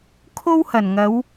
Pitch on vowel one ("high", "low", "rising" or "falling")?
high